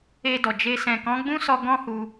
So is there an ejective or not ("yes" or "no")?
no